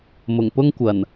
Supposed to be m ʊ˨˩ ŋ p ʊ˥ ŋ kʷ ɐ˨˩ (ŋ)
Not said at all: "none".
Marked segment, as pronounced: n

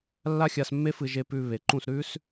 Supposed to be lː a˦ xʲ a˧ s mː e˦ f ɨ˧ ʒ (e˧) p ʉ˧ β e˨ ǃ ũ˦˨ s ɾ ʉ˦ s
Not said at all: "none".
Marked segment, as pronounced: e˧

